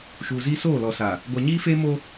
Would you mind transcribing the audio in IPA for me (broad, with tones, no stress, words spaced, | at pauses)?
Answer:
ʃuː˨ziː˦ soː˦˨lɔ˨sa˨ | ɡʷa˨ɲiː˦feː˦mo˦